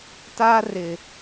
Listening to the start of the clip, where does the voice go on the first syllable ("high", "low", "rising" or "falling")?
high